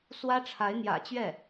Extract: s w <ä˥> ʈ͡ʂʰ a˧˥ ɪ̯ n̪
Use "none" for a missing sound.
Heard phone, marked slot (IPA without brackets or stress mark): ä˥